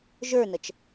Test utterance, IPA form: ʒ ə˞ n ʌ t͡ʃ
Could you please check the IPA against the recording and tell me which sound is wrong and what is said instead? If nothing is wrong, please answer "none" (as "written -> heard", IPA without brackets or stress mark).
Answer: none